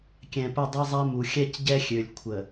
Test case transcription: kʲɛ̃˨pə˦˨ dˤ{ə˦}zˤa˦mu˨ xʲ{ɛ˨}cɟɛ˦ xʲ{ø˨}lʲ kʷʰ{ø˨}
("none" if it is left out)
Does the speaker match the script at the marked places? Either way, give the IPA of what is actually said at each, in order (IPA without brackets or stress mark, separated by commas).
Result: ɛ˦, ɛ˦, ø˨, ə˨